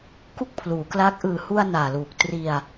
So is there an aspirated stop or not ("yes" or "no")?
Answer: yes